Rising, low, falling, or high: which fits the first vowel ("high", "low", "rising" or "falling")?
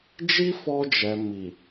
high